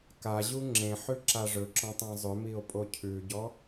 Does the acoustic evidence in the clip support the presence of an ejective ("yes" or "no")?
yes